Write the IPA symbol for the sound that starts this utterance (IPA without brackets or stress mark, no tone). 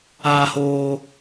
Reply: aː